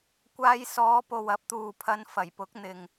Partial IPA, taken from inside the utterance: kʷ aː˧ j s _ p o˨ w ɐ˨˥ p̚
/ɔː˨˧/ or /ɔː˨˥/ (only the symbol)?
ɔː˨˧